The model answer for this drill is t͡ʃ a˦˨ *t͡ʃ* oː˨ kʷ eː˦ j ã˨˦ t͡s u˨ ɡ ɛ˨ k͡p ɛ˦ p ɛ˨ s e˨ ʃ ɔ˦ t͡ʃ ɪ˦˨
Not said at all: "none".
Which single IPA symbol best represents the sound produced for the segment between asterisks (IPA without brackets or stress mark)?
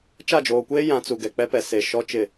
d͡ʒ